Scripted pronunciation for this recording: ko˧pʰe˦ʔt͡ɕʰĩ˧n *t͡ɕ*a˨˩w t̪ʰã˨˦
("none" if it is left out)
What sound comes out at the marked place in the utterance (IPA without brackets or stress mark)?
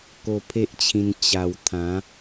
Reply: t͡ɕ